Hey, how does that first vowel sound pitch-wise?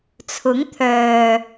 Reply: rising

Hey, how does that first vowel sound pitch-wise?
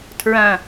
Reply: falling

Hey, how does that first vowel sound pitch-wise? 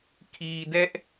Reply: low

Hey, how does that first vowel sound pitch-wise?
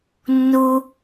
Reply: high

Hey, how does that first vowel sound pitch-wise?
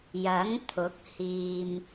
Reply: rising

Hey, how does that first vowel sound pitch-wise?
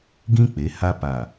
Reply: high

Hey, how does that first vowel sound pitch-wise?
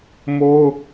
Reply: high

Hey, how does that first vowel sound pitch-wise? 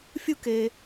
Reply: high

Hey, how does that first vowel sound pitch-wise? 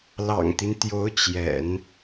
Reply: low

